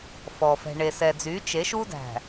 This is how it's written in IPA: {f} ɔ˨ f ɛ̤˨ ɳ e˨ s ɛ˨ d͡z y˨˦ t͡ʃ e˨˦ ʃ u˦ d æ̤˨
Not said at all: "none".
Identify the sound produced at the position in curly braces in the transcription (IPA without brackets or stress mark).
f